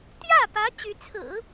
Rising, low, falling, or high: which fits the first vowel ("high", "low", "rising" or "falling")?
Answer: falling